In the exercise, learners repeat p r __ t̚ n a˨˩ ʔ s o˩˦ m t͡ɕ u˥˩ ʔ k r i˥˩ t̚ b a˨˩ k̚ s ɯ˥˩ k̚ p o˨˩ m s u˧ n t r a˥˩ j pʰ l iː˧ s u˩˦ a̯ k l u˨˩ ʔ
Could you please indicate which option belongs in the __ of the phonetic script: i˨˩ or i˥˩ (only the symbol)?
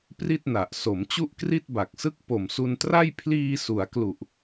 i˥˩